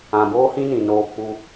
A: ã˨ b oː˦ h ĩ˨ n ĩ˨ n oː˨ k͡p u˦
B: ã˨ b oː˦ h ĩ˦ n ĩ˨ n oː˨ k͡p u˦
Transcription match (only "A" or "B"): B